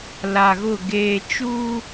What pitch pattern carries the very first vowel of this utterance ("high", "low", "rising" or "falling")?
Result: low